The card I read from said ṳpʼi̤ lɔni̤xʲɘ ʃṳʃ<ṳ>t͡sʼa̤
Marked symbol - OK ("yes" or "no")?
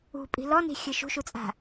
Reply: no